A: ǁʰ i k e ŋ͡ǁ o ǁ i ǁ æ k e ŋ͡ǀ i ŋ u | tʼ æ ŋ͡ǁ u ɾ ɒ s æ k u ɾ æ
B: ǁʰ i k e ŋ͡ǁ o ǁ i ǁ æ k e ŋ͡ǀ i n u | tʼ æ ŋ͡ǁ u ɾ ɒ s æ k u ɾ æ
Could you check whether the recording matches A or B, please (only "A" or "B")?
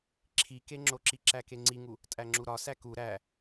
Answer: A